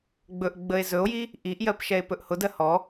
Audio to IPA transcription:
ɡ͡b ɵ ʔ ɡ͡b ə e̯ z ɵ o̯ j i | ʔ i ʔ j ɜ p ʃ ɛ e̯ p ɵ ʔ h ʊ d ɜ h ɔ

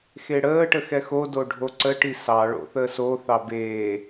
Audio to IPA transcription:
x e ɽ əː ʈ ə x ɛ x o d o ɖʱ o ǀ ə ʈ i s ɑ ɭ o̰ θ əː s o θ ɑ b eː

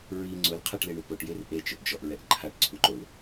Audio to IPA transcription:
ɹ i ŋ͡ǀ ʊ l qʰ a ʈ l e ɳ u p o ʈ j e r ʔ e t͡ʃ ʊ ʔ d͡ʒ ɔ ʔ ɹ ɛ ʔ ǃʰ a ʈ ǀʰ u ǃ o l

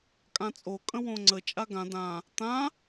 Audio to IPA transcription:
kʼ ã t͡sʼ o kʼ ə̃ w õ ŋ͡ǀ ə t͡ʃʼ a ɡ ã d ã | t̪ ã

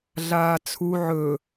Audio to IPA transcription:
ɮ aː t͡sʰ u ʕ ɵ

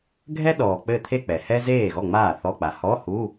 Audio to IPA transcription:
ɡʱ ɛ˥ ɗ ɔː˨ k͡p ɘ˥˧ t̪ʰ e˥˧ k͡p ɛ˨ h ɛ˥ z eː˥˩ ɣ ɔ˥˩ ŋ͡m aː˥˩ θ ɔ˧˥˧ k͡p a˨ h ɔ˧˥˧ h u˧˥˧

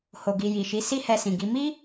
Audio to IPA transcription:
h o˨ ɡ i˨ j i˨ ʃ i˨˦ s i˦ h ɛ˧ s ĩ˨ ɡ i˨˦ m i˦

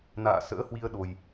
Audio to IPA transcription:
n a̰ː˧˨ s ə̰ː˧˥ h w i˧ ə̯ ɗ o˨˩ j

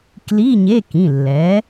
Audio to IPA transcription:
k l i˧˥˧ ɲ e˧˥˧ k ĩ˩˧˩ lː ɛ˩˥

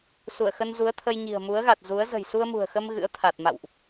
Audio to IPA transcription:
s u˧˩ ə̯ x ə˧ n z u˨˦ ə̯ t̪ʰ ə˧ j ɲ i̤˨˩ ə̯ m u˨˦ ə̯ ɣ a˨˩ t̚ z u˨˦ ə̯ z ə̤˨˩ j s u˧ ə̯ m ṳ˨˩ ə̯ x ə˧ m ɣ ɨ̰˧˥ ə̯ t̪ʰ a˨˩ t̚ m a̰˧˨ w ʔ

